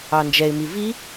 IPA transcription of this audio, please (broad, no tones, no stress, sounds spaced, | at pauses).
ɑ n d͡ʒ ɛ ɪ̯ m i v i